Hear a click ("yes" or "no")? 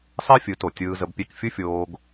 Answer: no